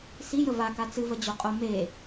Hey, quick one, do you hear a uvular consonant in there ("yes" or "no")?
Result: yes